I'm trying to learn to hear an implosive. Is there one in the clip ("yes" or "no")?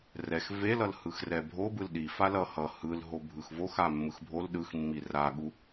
yes